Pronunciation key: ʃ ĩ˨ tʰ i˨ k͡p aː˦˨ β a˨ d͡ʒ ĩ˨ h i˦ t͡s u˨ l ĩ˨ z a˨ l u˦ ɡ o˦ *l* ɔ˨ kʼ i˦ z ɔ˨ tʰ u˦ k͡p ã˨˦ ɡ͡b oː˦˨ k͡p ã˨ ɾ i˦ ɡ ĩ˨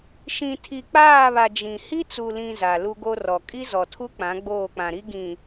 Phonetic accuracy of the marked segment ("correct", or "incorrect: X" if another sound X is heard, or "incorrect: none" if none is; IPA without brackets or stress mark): incorrect: r